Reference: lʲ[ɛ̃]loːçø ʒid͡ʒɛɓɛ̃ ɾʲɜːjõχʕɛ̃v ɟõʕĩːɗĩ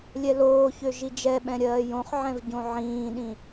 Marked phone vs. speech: incorrect: ɛ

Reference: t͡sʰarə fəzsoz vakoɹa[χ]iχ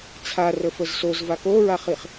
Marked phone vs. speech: correct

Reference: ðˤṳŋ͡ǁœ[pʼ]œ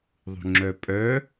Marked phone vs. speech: correct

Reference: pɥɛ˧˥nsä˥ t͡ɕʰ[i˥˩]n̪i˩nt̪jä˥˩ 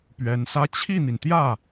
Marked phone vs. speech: correct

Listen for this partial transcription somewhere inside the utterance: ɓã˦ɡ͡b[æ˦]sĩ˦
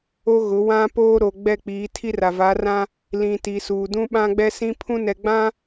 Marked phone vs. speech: incorrect: ɛ˦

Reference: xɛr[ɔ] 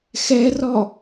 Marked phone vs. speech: correct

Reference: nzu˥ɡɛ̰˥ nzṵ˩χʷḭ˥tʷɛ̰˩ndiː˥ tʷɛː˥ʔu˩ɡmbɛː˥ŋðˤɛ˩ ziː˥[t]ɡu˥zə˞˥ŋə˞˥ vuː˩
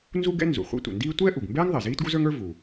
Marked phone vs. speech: correct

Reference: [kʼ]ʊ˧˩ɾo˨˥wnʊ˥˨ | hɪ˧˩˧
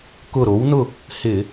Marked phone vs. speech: incorrect: k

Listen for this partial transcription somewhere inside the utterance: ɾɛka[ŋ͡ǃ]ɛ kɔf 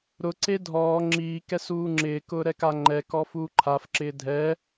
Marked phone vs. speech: correct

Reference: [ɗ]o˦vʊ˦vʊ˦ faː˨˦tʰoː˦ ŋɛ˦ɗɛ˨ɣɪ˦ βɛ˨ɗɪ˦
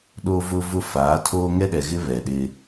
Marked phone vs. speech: correct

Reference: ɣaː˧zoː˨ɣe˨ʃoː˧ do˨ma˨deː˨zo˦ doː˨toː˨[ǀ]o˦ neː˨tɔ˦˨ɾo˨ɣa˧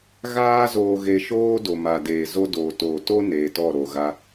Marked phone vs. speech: incorrect: t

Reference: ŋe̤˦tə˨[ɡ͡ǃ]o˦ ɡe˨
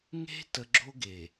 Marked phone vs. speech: incorrect: ɡ͡ǁ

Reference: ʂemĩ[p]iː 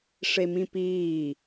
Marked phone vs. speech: correct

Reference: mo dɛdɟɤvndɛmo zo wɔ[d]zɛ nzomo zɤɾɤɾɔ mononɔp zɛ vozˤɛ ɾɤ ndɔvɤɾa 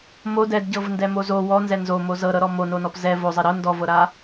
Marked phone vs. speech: incorrect: n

